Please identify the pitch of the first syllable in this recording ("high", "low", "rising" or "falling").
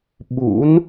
rising